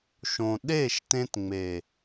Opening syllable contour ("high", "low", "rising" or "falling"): low